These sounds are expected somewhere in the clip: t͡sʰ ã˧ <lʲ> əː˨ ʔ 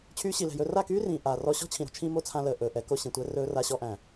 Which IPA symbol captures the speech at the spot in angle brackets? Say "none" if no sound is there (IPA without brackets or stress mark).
l